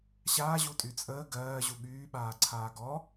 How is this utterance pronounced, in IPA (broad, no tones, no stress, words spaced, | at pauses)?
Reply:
ɕaːʑutʼy t͡sʼəː ɡɜːʑu ɠyːɓaːǀʰaː ɡɔ